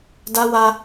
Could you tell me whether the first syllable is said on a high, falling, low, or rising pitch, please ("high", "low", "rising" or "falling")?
high